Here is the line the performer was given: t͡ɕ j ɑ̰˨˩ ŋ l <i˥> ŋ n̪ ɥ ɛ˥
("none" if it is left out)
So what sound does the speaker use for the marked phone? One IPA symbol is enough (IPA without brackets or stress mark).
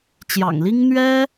i˥